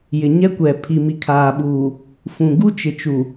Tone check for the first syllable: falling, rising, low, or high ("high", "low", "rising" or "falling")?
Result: low